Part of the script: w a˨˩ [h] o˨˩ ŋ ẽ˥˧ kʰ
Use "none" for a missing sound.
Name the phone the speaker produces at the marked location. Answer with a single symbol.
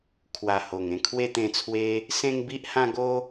h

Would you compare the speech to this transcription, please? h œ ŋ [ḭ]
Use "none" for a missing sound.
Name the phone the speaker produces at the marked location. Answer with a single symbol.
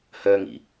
ḭ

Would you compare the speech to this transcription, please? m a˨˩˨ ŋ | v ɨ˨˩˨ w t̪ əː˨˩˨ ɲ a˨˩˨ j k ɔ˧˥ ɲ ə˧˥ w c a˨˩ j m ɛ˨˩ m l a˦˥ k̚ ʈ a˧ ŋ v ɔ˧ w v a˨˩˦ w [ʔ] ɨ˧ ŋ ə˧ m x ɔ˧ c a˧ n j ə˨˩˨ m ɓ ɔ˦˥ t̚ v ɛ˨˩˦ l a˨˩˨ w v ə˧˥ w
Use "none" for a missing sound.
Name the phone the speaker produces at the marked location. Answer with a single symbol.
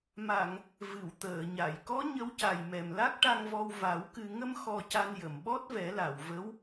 k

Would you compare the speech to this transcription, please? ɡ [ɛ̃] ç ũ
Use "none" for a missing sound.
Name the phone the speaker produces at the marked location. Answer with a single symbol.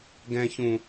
ɛ̃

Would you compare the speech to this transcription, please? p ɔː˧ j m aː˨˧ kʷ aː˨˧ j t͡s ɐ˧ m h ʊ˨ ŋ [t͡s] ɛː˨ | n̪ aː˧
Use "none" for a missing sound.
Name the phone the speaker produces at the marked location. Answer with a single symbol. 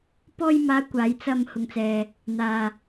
t͡s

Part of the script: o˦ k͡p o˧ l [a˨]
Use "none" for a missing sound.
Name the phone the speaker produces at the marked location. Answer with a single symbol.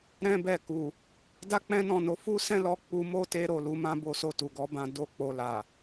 a˨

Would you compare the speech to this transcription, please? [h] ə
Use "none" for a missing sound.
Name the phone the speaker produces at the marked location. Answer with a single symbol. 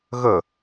ɣ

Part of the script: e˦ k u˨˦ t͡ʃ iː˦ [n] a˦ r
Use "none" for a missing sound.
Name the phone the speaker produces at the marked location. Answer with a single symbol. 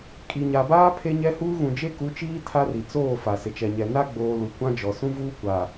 tʰ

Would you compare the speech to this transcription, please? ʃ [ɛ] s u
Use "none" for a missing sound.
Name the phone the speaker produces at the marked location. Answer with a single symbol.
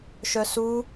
œ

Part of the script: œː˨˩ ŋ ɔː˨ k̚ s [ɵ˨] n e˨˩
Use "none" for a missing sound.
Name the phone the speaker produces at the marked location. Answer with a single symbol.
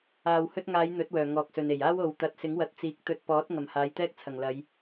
ɵ˨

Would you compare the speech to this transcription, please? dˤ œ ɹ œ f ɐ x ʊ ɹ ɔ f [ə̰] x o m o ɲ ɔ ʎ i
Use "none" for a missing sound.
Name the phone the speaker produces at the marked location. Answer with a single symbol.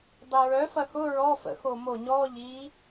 ə̰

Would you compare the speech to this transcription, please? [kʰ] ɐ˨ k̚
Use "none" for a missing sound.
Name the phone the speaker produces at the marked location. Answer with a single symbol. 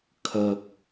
kʰ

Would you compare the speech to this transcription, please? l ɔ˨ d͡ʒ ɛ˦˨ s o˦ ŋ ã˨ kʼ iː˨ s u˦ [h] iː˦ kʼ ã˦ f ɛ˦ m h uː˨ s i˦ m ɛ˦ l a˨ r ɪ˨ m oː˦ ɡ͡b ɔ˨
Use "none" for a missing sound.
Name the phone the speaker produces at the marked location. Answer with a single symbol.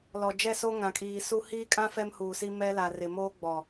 h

